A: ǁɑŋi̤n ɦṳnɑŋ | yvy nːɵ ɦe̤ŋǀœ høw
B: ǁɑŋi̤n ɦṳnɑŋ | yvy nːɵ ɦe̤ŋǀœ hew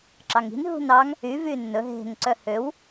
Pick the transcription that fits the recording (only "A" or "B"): A